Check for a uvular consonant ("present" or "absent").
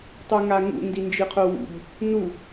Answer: present